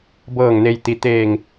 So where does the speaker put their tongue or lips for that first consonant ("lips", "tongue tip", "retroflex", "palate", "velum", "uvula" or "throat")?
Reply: lips